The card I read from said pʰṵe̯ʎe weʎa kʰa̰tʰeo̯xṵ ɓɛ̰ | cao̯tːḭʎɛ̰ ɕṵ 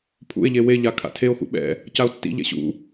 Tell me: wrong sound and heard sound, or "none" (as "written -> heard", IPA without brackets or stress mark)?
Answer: none